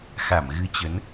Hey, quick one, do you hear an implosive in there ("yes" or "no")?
no